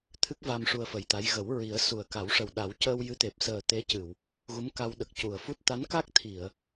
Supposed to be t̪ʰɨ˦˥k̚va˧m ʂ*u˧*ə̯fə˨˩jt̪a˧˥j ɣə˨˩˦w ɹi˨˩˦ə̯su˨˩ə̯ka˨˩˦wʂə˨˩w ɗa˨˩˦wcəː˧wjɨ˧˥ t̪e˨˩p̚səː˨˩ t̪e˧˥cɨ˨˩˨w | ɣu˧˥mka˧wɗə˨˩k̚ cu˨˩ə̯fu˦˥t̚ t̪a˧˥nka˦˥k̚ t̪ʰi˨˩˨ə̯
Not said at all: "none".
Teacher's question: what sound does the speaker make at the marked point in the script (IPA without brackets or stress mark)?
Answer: u˧